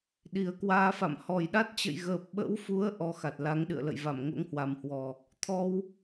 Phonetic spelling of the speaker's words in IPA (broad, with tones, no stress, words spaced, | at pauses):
ɗi˨˩ə̯kwaː˧fa̰˧˨m hɔ˨˩jɗa˦˥t̚t͡ɕə̰˧˨j ɣəː˨˩p̚ɓə̰˧˥wfu˨˦ə̯ ʔɔ˧xa˨˩t̚ la˨˦ŋɗɨ̰˧˨ə̯lə̰˧˨jva˧˩m ŋo̰˧˥ŋhwa˨˩mhwɔ˨˩ | t̪ʰɔ˧w